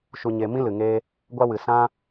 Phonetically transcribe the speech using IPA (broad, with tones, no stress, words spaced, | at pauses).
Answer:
ʃu˧ɲe˧mĩ˦ lɨ˨ŋeː˧ | ɡʷa˧wɨ˨ sã˦